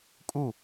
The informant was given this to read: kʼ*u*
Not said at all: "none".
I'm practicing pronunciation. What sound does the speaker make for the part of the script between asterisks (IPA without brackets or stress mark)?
u